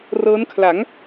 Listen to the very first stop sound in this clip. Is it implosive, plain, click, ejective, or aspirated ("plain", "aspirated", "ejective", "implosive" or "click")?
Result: aspirated